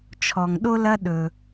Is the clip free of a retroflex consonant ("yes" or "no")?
yes